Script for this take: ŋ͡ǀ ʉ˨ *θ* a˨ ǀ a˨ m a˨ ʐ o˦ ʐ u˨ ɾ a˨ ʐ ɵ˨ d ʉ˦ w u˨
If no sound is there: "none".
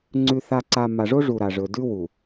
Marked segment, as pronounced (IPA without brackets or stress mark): θ